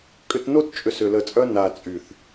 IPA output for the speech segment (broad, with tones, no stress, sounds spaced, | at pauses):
kʼ ʏ˧ t n o˦ t t͡ʃʼ ʏ˨ s ʏ˨ l ə˨ t͡sʼ œ˧ n a˨ t͡sʼ y˨ θ